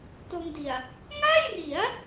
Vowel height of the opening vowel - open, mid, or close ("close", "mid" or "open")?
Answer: mid